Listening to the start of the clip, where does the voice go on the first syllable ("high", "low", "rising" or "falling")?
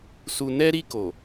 low